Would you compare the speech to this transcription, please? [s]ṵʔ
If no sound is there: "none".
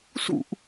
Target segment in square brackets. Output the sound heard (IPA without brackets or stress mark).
s